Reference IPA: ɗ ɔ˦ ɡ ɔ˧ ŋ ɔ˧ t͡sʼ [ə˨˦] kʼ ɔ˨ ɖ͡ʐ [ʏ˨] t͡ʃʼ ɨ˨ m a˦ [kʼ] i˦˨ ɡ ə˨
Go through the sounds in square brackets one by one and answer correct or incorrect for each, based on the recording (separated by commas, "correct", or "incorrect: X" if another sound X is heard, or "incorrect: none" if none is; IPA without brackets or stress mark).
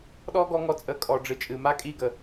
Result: correct, incorrect: ɨ˨, correct